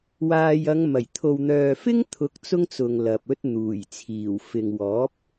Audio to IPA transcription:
w aː˨ j ɐ˨˧ ŋ m ɐ˨˩ j t̪ʰ o˨ w n̪ œː˨ f ɪ˥ ŋ t̪ʰ ʊ˨˥ k̚ t͡s ʊ˥ ŋ t͡s ʊ˨ ŋ l ɐ˨ p̚ ɵ˥ t̚ n̪ uː˨˩ j t͡sʰ iː˨˩ w f ɪ˨ ŋ w ɔː˨˥ p̚

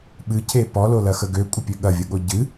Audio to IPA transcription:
ɓ ɨ cʰ e p ɔ l o l ɐ x ə ɡ ø kʷʼ ə pʲ ø ɠ ɐ vʲ ə ɠ o ɟ ɨ

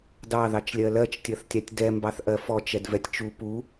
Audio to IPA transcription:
d ɑ ð ɑ t͡ʃ lʲ ɜ l ɜ t͡ʃ tʲ ɜ θ tʲ ɑ tʲ d ɛ m b ɑ θ ʔ ɜ f ɔ t͡ʃ ɛ d v ɛ tʲ t͡ʃ u p u

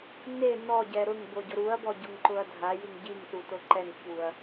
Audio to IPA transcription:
n e n ɔ ɟ ɛ ɾ ʊ ŋ b o ɟ ʊ ɾ u ɐ̯ b ɔ ɟ ʊ ŋ ǃ ʊ ɐ̯ dʱ a j i ŋ ɟ i ŋ s u t o ǃ ɛ ŋ ç u ɐ̯

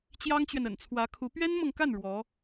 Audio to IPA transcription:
t͡ɕ j ɑ˥ ŋ t͡ɕ ɥ ɛ˨ n ə̰˨˩ n t͡sʰ w ä˧˥ kʰ u˧˥ p ɥ ɛ˥ n m ɤ˨ ŋ k a˥˩ n ɻ w ɔ˧˥

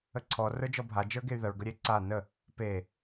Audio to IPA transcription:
ə ǀʰ ɔ r ə˞ d͡ʒ ɔ bʱ a d͡ʒ ə˞ ɡ e y̯ ð ə ɹ ɡ ə ɾʲ e ǀ a n ə | p e

